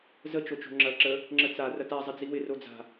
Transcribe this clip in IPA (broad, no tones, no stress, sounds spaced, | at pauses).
z ə t͡ʃ o t͡ʃ o̤ ŋ͡ǁ ɐ ǁ ə | ŋ͡ǁ ə t͡s a r ɐ t a zˤ ɪ d͡z i w ɪ r o d͡z a̤